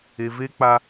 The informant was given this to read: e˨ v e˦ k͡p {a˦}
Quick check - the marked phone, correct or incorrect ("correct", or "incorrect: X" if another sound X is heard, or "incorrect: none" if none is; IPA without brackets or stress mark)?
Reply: correct